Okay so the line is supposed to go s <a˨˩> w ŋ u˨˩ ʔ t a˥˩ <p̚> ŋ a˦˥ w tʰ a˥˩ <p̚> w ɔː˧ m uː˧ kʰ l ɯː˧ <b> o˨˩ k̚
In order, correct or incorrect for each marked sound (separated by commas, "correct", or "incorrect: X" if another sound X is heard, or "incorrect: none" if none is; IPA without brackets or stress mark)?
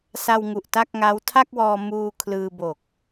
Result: incorrect: a˧, incorrect: k̚, incorrect: k̚, correct